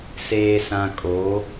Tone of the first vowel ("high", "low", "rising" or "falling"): low